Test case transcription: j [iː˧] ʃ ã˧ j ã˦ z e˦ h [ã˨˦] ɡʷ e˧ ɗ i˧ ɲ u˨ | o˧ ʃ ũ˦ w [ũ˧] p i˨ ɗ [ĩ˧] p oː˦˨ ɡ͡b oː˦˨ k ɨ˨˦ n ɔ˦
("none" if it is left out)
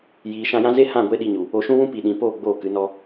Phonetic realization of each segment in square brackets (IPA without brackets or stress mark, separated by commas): iː˨, ã˦˨, ũ˦, ĩ˨